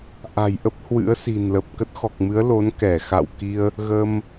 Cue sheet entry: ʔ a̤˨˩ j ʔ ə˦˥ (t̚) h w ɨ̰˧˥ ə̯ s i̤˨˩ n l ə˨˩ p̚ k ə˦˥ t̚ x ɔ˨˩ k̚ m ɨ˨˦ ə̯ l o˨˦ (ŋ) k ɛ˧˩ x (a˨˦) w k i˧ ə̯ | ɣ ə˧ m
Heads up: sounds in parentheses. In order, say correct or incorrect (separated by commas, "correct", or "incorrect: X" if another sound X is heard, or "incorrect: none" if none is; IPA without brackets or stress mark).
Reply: incorrect: p̚, incorrect: n, incorrect: a̰˧˨